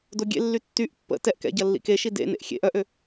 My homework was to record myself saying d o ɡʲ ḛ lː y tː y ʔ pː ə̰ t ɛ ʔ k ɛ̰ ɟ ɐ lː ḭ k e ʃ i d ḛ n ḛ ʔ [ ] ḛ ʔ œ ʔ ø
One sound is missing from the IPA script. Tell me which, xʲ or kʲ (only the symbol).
xʲ